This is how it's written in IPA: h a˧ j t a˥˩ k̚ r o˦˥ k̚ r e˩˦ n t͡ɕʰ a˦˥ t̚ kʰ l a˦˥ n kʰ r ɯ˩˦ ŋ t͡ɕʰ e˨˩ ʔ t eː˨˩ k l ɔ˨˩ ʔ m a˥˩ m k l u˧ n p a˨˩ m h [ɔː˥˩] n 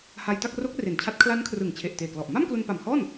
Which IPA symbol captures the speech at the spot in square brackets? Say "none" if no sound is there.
ɔː˥˩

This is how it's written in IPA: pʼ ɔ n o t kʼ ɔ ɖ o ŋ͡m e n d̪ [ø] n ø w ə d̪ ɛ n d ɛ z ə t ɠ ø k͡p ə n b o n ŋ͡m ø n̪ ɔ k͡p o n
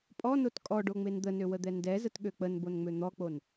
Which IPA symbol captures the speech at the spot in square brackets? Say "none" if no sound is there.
ə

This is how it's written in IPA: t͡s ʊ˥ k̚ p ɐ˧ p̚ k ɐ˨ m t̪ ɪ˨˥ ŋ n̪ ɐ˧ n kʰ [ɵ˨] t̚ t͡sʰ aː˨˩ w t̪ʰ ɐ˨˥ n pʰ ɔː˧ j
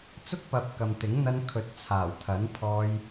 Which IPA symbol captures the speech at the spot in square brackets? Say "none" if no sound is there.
ɵ˨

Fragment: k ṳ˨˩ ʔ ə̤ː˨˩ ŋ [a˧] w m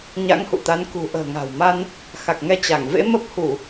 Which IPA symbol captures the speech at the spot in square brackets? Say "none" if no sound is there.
a̤˨˩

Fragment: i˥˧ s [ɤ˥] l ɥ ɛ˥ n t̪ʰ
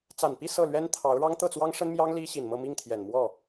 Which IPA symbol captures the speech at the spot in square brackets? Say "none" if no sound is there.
ɤ˥˩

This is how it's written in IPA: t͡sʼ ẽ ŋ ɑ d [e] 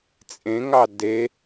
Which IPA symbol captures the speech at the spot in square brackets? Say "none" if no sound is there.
e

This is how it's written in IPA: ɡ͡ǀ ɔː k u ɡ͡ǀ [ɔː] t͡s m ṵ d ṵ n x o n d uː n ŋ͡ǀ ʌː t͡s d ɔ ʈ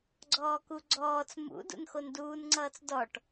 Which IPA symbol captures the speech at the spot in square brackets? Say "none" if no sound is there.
ɔː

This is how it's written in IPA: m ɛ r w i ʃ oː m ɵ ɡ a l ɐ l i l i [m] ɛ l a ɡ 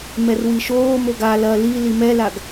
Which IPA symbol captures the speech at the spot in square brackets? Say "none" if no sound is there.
m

